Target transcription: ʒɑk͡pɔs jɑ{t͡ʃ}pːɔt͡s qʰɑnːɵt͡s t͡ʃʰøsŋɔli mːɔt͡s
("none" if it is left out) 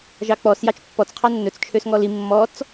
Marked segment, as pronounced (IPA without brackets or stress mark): t͡ʃ